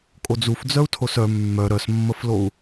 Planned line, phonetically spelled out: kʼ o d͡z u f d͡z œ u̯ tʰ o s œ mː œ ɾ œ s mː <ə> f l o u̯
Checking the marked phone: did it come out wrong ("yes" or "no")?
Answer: no